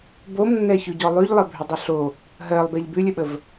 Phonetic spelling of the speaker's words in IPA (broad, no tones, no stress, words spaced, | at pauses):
bomnːɛçʉɟɔ lˠʉʎlˠəbʱʏdˤʏ ɬo | ɦɜlˠbɛʎ bʉlʲəɓəv